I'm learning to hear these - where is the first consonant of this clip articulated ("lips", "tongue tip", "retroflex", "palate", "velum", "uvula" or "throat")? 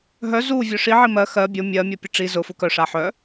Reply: throat